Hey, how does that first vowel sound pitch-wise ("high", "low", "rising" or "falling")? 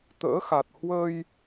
rising